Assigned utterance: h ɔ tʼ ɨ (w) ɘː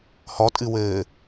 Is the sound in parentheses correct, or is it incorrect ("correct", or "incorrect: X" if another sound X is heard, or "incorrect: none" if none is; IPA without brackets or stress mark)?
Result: correct